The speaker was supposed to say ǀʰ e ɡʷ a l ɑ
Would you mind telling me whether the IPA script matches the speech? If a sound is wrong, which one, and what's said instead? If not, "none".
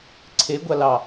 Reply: none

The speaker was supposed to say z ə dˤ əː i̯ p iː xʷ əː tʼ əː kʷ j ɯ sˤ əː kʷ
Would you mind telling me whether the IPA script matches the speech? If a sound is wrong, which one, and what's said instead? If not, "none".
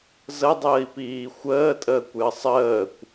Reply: ɯ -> ə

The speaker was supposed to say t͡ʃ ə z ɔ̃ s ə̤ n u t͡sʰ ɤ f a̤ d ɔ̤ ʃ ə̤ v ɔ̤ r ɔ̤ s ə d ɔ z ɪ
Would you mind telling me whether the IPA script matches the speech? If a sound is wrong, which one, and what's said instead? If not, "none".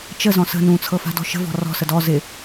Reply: u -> ũ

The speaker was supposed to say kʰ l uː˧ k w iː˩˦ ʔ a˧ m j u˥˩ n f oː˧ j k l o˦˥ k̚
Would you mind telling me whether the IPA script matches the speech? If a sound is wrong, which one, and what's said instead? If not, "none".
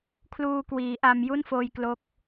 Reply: none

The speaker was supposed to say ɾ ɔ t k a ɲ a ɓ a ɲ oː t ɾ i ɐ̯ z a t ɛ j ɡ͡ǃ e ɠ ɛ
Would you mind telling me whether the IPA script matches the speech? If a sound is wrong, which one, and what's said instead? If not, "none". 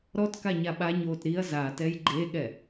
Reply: none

